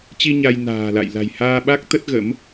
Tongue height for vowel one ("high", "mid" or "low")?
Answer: high